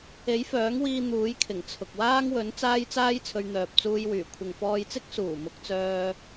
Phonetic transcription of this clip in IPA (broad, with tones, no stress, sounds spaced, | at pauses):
e˨˥ j f œː˨˥ ŋ w iː˧ n̪ uː˨˥ j kʰ ɪ˨˩ ŋ t͡sʰ ʊ˨ k̚ w aː˥ ŋ w ɵ˨˥ n t͡s aː˥ j t͡s aː˥ j t͡sʰ ɵ˧ ɥ n̪ œː˨ p̚ t͡s uː˧ j w yː˨˩ kʷʰ ɪ˨ ŋ f ɔː˧ j t͡s ɪ˥ k̚ s uː˨˩ m ʊ˨˥ k̚ t͡s œː˧